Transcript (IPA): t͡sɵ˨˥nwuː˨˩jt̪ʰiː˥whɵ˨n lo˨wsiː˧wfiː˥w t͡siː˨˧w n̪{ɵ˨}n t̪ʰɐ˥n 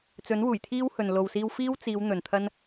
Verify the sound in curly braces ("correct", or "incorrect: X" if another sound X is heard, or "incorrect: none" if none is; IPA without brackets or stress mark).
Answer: correct